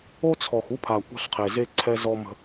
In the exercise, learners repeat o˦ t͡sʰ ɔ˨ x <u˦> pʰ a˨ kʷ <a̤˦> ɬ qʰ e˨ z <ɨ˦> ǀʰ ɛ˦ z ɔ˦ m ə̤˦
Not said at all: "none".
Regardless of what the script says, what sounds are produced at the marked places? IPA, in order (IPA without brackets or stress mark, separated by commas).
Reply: u˦, a̤˦, e˦